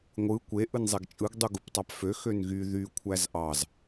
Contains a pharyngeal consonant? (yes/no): no